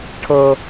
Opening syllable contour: high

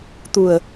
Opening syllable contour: low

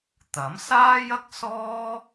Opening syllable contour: rising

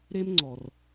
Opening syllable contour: high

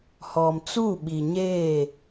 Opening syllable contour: low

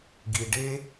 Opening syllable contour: low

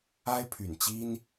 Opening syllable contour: high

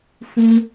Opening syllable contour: high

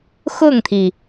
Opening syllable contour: falling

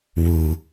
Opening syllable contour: low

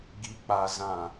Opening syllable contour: high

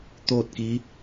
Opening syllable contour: falling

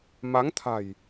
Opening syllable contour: rising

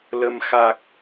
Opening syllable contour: low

